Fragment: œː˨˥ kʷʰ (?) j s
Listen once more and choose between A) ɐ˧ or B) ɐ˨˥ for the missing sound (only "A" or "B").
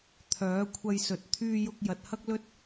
A